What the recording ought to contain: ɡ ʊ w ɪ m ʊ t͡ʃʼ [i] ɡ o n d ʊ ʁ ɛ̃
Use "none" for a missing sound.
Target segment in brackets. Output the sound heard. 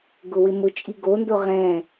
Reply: i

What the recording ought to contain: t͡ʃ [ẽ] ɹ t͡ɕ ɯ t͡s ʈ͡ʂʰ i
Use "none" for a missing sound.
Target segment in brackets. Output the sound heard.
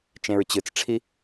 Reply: ẽ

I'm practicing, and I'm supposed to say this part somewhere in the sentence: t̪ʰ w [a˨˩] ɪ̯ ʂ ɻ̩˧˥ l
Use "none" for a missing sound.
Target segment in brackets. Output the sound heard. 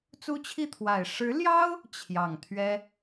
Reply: a˨˩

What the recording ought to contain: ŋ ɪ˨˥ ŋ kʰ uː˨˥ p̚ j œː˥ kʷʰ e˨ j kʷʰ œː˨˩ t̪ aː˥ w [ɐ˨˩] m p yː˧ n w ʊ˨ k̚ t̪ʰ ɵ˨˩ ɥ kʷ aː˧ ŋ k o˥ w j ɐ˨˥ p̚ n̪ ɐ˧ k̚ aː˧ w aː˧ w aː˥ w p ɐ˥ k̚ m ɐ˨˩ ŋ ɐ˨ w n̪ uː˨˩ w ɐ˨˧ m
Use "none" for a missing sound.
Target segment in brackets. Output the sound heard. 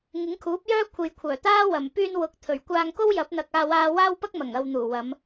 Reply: ɐ˨˩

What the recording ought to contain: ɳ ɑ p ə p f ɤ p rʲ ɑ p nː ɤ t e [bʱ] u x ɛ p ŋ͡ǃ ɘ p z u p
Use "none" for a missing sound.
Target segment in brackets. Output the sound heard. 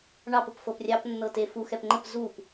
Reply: f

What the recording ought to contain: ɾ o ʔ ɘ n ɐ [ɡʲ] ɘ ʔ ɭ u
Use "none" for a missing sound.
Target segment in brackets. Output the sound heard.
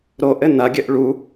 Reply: ɡʲ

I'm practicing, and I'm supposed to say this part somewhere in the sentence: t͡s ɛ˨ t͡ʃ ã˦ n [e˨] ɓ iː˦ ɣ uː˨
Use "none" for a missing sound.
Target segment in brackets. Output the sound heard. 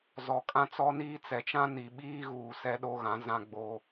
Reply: i˨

